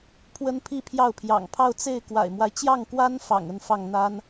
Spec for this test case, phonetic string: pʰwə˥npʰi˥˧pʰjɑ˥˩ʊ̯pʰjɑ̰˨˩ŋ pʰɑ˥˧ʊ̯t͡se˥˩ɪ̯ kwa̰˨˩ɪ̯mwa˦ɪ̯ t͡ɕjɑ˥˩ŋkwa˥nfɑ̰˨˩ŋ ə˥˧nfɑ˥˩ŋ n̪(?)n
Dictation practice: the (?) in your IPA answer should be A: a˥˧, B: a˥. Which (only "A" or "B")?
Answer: B